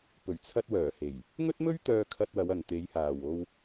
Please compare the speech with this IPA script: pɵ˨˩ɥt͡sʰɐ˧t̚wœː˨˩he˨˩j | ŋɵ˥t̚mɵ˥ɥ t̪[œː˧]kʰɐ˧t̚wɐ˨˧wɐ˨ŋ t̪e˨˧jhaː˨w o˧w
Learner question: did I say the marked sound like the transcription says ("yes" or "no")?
yes